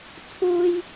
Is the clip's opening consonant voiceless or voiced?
voiceless